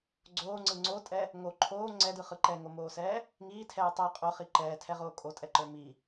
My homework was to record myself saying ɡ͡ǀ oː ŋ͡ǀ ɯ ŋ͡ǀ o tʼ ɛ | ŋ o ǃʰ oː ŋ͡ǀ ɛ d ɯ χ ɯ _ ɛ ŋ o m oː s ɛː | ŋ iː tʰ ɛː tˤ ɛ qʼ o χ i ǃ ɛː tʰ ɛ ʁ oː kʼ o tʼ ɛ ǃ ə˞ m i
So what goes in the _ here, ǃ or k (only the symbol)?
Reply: ǃ